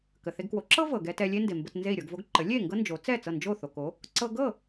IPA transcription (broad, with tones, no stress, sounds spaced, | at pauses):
k ə˩ θ e˧ ɡ k w o˩˥ ǁ ɤ˥ v ɤ˩ ɡ ɛ˧ t ɛ˧ lʲ e˥ n d e˩ m b ə˧ t n z e˥˩ i̯ ɾʲ ɤ˧ ɡ v o˥ ɡ ǃ ə˩˥ lʲ e˥˩ ŋ ɡ ɤ˥ n d͡ʒ o˩˥ t͡s ɛ˥˩ t͡s ɤ˥˩ n d͡ʒ o˥˩ θ o˩ k o˩˥ | ǀ ɤ˧ ɡ ɤ˥˩